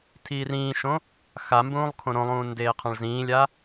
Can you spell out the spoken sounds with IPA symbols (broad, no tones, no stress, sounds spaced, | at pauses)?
tʰ iː r ĩː ʃ õ | x a m b ũː lˠ kʰ õ ɾ õ lˠ ũː n d eː qʰ ã ɭ z ĩː lʲ a